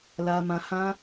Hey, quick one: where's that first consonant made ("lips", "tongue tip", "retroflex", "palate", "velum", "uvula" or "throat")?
tongue tip